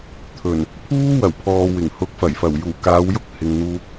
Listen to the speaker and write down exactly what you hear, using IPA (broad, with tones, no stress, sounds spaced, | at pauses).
t̪ʰ ɵ˨˩ n | pʰ uː˥ w ɐ˨˩ w pʰ ɔː˨ w ɪ˨˩ ŋ h ʊ˨˥ k̚ f ɐ˨˩ j f ɐ˨˩ w j uː˨˩ k aː˨˧ w j ʊ˥ k̚ h ɪ˨ ŋ n̪ uː˧ k̚